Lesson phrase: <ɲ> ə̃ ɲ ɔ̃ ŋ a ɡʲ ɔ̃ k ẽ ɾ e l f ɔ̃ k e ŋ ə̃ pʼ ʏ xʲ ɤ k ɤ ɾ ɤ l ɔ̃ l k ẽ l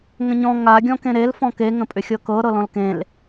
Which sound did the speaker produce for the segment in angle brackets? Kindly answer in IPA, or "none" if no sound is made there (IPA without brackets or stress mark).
ŋ